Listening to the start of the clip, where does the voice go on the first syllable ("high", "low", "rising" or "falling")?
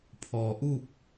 low